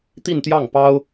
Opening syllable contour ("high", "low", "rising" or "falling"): falling